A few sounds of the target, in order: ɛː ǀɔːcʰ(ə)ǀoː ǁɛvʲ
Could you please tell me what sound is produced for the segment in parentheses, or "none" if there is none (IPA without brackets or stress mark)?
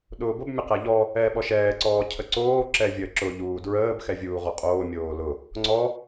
ə